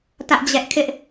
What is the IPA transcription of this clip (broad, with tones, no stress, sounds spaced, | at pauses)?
t ä˦ ʔ d͡ʑ ɛ˦ ʔ kʰ ɪ˦ ʔ